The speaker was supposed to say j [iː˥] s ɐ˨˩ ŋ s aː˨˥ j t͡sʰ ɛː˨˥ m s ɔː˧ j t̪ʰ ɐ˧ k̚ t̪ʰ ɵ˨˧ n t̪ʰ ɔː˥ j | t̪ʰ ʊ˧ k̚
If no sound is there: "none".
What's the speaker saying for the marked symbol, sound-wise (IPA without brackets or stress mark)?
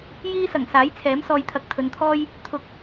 iː˥